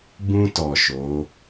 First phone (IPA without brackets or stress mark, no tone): b